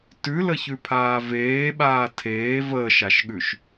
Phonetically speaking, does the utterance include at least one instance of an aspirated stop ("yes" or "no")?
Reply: yes